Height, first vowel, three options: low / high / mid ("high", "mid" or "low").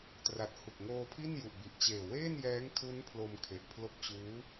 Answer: low